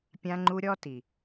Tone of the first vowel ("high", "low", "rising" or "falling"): high